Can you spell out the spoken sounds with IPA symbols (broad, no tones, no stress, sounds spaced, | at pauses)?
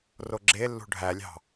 r o ɡ͡ǁ e lː ṳ ɖʱ æ lʲ ɑ̤